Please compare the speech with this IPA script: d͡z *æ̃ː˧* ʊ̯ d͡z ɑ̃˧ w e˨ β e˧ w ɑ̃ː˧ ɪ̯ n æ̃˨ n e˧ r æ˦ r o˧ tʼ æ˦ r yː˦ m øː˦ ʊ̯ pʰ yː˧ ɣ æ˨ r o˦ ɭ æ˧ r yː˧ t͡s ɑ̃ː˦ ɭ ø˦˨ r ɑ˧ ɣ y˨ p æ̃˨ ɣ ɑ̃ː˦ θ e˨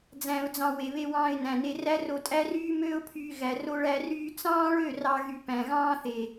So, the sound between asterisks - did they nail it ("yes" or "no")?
no